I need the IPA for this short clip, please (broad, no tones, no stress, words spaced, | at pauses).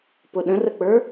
pʊɗə̃rək͡pə˞